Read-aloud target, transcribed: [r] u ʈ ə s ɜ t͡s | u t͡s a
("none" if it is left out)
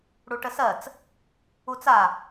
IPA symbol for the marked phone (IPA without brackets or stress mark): ɽ